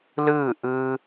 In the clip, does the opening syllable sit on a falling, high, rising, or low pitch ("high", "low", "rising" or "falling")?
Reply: falling